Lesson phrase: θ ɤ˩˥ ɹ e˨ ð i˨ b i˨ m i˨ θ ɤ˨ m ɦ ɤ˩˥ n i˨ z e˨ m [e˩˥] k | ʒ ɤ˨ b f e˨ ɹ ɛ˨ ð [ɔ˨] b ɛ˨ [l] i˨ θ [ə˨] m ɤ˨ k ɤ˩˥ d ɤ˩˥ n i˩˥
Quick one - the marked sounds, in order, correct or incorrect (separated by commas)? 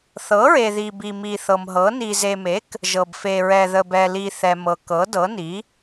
correct, incorrect, correct, incorrect